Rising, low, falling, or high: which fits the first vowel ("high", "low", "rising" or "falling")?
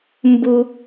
high